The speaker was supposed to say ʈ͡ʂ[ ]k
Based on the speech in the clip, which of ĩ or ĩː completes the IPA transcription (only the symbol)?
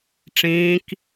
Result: ĩː